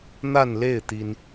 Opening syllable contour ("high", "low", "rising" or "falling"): falling